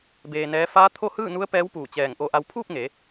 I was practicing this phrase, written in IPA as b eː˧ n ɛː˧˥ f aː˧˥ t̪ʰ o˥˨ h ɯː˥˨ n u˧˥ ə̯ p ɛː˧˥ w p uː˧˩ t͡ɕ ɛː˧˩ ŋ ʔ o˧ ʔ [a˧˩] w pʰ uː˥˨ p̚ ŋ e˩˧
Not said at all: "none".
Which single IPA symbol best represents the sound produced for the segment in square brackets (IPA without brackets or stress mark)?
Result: a˧